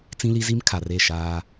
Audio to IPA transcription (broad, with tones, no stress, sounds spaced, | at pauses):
t͡s ĩ˦ l i˦ z i˦ m kʰ a˨ r e˦˨ ʃ aː˦